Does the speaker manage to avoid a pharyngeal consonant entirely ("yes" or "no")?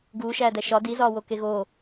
yes